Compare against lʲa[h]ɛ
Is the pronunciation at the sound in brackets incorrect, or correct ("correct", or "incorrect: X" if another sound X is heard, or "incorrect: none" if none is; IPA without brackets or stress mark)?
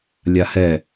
correct